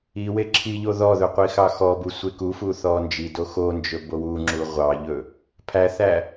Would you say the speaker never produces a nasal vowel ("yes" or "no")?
yes